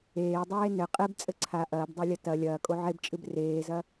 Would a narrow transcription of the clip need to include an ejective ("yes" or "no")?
yes